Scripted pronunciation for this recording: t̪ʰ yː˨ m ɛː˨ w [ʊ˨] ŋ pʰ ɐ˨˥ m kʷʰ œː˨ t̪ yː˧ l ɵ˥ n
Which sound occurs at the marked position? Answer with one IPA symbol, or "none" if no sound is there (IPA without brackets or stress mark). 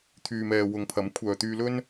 ʊ˨˧